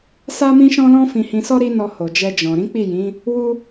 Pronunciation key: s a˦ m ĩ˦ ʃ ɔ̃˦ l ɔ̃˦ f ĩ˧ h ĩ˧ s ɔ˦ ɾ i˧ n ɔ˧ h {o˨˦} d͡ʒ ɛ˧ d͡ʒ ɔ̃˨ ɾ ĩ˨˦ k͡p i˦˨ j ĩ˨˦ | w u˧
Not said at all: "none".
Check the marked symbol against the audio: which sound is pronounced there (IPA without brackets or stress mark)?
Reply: o˨